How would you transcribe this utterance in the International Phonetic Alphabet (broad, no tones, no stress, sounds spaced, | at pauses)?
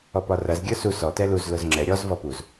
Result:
ɔ p ɒ r ɐ z ɡʲ ə˞ s u s ɔ t ɛ l u z l ʊ z ŋ͡ǁ ɛ ɾʲ ɔ z v ɔ p u z